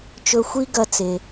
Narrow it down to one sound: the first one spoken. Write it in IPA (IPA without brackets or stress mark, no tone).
t͡ʃ